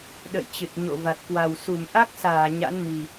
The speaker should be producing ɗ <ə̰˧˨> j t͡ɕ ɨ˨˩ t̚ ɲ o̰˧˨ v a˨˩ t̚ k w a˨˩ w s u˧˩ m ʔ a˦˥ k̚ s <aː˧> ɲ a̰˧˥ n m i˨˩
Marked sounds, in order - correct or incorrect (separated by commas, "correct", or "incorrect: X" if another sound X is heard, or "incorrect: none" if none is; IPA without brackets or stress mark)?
correct, incorrect: aː˧˩